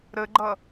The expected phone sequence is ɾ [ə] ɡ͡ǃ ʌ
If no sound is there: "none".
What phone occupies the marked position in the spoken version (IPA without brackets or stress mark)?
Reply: ə